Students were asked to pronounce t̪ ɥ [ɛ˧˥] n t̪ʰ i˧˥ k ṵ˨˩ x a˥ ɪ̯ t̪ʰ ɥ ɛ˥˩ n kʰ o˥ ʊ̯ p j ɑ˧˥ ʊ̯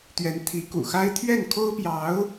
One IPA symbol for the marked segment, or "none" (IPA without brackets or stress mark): ɛ˧˥